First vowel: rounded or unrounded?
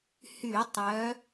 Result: rounded